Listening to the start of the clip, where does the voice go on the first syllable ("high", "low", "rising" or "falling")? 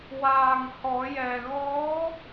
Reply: low